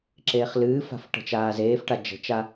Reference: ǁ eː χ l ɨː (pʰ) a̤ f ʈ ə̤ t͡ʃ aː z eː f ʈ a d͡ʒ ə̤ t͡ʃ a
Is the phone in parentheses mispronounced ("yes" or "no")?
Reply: yes